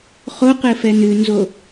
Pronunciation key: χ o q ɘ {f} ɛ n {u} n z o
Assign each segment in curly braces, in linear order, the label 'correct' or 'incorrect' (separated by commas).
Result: correct, incorrect